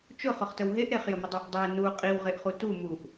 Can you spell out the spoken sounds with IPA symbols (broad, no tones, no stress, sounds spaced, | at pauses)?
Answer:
t͡ʃ ʊ χ ʊ χ t ə w ɦ e ʔ ɾ e χ j ə m ə dˤ e ʔ dˤ e n u qʼ i w ʁ e ʔ χ u t u m u ʔ